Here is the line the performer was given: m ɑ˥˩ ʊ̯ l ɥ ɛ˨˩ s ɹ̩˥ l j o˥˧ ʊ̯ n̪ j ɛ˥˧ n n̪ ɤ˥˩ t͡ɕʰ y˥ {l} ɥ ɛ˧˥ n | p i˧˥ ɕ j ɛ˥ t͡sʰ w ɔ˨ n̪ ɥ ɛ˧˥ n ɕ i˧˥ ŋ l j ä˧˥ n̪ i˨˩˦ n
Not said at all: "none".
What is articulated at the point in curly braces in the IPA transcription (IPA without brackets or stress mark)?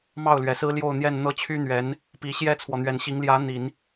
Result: n̪